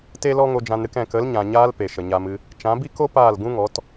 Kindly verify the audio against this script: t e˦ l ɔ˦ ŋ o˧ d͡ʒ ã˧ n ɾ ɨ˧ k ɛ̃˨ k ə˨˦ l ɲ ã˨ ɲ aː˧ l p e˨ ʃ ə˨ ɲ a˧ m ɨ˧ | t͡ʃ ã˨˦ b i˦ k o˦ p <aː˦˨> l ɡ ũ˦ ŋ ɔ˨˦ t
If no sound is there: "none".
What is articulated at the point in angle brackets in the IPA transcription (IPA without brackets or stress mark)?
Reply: aː˦˨